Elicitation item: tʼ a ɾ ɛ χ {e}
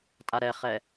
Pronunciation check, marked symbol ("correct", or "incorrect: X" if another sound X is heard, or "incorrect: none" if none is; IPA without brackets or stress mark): incorrect: ɛ